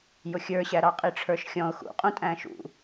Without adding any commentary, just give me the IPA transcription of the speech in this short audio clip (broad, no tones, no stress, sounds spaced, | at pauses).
j ʊ xʲ ə˞ ɕ æ ɾ ɑ qʼ i ʈ͡ʂʰ ə˞ ʃ xʲ ɔ̃ ʊ̯ x ṵ qʼ ũ tʼ æ̃ ʃ ṵ